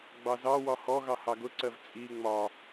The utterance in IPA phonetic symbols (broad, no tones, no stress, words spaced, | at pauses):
ɡ͡bɑzɑwɒ hɔɣɑ hɑɡʊǀɜv t͡sʼi ŋ͡mɒ